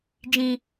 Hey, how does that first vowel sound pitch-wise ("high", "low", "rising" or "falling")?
low